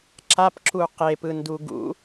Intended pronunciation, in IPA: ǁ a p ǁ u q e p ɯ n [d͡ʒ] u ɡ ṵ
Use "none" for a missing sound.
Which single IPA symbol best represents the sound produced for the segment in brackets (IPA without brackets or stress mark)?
d